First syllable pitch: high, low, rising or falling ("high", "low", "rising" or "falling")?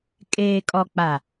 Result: low